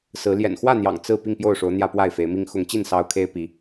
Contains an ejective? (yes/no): no